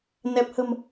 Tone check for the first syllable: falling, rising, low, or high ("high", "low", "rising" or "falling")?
low